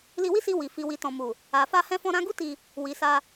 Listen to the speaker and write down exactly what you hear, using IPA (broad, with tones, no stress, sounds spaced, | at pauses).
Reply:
l i˧ w i˦ s i˧ w i˨ f i˨ w i˨ t ɔ̃˨ m u˨ | a˨ f a˧ h ɛ̃˧ f ɔ̃˧ ɾ ã˧ ɡ u˦ t i˧ | w i˨ s a˧